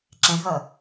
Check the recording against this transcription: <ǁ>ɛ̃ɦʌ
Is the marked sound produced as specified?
yes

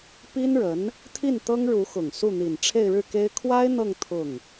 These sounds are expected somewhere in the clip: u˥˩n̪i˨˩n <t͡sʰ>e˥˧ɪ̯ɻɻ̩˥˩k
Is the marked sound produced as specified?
no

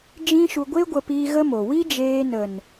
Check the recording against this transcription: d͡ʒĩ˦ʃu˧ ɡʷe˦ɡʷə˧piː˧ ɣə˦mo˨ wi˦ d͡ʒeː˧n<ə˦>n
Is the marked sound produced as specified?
no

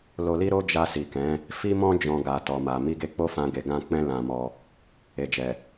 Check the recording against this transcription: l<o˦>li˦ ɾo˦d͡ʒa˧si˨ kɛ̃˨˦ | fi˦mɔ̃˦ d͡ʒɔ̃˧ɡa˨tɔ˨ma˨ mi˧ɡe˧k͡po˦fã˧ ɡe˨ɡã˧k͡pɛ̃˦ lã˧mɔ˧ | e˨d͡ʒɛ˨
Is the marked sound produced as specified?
no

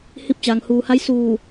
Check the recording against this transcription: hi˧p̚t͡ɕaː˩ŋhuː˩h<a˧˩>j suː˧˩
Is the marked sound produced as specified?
no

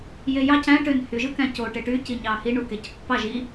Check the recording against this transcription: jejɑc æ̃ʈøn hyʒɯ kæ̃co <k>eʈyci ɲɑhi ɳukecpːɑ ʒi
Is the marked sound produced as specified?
no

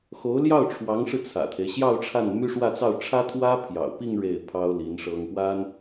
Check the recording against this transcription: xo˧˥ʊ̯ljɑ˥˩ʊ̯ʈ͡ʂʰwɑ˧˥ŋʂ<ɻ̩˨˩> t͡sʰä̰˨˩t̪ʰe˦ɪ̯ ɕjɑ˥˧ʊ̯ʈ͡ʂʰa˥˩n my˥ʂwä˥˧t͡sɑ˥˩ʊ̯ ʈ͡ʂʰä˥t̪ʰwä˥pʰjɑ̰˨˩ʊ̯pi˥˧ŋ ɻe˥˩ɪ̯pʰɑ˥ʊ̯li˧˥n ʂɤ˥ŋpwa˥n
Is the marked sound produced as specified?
no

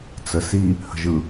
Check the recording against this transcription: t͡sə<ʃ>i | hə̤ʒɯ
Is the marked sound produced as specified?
no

